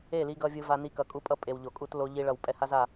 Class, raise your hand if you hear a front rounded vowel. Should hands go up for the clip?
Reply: no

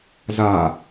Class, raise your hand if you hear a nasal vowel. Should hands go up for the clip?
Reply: no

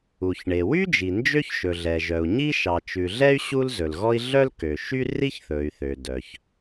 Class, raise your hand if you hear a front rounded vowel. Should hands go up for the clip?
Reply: yes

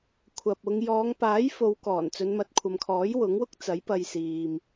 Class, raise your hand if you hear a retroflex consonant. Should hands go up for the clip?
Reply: no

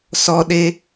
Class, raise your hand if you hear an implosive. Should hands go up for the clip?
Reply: yes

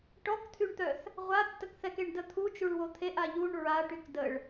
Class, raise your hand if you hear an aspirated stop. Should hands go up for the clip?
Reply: yes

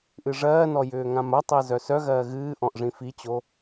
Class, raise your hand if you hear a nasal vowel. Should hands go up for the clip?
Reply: yes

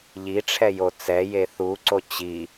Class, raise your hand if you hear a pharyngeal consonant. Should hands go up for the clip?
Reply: no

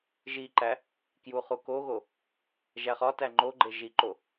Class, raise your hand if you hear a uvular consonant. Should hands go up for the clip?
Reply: yes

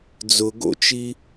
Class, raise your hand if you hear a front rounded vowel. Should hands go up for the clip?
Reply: no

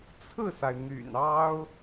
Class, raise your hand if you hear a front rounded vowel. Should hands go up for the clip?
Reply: yes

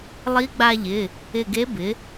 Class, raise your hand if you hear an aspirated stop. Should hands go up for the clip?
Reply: no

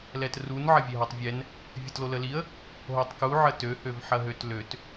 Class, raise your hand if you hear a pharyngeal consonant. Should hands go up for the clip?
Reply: yes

